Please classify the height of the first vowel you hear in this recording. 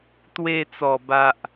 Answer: mid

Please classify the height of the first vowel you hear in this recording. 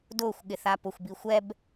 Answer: high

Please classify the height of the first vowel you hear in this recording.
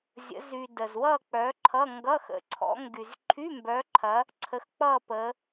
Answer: mid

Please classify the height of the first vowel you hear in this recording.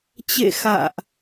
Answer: mid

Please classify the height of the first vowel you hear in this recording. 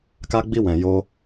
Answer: low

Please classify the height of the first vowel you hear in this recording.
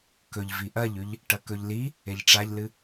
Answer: mid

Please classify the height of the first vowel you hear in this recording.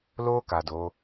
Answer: mid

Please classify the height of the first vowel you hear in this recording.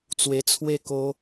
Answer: mid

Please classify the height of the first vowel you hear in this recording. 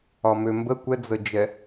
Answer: low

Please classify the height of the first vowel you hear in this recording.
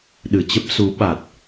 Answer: high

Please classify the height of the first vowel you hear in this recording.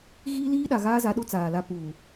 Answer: high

